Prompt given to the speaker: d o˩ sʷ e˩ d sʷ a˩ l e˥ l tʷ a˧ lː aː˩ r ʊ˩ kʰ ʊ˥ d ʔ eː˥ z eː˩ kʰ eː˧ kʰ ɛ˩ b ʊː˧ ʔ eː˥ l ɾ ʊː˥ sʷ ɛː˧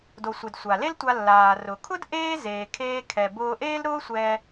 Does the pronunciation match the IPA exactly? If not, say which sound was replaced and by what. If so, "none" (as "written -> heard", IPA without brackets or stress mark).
none